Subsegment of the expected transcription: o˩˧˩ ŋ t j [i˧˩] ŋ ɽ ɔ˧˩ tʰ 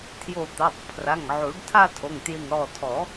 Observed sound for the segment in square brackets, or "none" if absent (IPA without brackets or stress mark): i˧˩